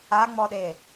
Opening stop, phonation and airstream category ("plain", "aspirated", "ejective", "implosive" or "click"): implosive